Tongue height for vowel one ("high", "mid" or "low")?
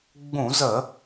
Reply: high